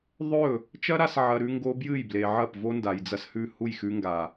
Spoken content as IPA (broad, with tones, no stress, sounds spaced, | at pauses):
ðˤ ɵ˦˨ | t͡ʃ ɐ˦ ɾ a˧ s ʕ ɐ˧ ɾ ʉ˦ ŋ ɡ o˧ b j ɨ˦˨ j b l e˨ ʕ ɐ˦˨ p v o˦ n d a˨ j d͡z ɐ˧ s h ʉ˦˨ h u˦˨ j x ʉ˧ ŋ ɡ a˨